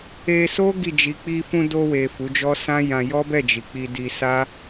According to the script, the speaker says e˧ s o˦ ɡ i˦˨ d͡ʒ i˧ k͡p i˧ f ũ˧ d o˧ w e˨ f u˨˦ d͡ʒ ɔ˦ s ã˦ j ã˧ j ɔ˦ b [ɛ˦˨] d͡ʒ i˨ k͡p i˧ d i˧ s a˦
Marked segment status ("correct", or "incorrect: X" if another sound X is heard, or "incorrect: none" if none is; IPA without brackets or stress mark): correct